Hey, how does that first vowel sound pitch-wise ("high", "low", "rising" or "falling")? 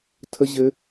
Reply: high